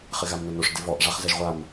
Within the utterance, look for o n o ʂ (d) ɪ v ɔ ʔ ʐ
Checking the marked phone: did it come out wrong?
no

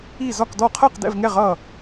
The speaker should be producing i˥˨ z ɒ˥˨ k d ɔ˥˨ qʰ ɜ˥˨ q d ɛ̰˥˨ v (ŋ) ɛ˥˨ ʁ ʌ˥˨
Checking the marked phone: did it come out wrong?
no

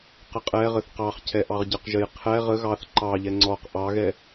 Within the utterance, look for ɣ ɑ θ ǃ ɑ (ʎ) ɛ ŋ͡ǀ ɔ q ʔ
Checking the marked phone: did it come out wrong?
no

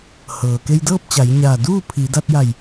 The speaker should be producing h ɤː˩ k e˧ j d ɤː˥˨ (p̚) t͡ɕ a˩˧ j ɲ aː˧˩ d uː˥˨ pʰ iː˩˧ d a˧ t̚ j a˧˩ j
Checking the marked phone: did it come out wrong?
no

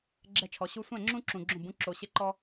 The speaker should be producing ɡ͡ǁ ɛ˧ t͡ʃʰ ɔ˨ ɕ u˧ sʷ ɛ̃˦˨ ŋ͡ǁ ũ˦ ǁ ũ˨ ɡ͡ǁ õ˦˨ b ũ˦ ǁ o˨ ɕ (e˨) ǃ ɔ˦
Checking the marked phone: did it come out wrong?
yes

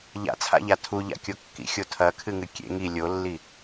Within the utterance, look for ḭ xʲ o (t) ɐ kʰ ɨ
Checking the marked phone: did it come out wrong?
yes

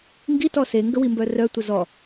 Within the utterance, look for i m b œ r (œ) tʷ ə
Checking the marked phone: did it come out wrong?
no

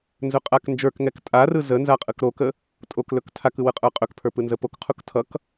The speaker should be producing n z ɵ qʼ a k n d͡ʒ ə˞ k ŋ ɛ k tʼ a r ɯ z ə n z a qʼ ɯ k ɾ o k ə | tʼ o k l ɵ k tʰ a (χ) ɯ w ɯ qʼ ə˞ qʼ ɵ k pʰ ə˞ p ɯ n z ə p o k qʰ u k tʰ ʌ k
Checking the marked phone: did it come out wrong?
yes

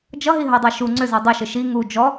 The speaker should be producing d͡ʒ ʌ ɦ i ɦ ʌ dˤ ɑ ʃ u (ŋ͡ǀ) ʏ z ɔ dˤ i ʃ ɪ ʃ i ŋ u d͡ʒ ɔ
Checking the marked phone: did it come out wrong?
no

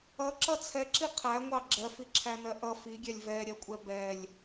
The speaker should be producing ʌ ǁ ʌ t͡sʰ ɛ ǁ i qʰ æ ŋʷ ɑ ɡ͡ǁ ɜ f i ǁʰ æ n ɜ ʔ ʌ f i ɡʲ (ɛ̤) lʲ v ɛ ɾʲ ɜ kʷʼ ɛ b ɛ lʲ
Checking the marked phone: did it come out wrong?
yes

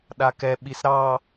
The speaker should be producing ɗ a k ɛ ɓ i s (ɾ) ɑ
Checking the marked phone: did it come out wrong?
no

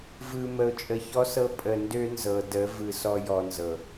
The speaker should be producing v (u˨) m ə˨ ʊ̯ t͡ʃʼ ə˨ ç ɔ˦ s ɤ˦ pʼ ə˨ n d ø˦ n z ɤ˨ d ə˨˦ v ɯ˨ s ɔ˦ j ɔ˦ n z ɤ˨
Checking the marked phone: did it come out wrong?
yes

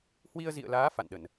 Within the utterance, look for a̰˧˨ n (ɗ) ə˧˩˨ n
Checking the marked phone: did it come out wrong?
no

